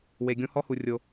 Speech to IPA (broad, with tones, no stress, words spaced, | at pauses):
we˩ɡʲõ˧ hɔ˥hu˩ rʲo˩